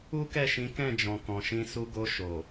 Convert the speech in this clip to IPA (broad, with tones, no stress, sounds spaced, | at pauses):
u˦ k ɛ˦˨ ʃ ĩ˨˦ k ɛ̃˦˨ d͡ʒ ɔ̃˨ k ɔ̃˨ ʃ ĩ˧ s u˧ ɡ o˧ ʃ o˨